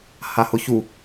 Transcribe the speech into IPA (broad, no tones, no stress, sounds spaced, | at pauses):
h a h ʊ ç u